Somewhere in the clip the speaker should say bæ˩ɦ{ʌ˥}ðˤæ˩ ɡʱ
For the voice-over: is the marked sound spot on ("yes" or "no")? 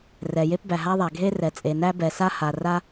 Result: no